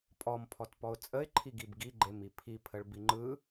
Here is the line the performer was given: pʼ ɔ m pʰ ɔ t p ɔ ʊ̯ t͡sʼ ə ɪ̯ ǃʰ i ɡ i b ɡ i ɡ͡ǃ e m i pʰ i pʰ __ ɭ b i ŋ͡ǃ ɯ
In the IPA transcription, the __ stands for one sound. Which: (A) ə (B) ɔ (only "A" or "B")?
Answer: A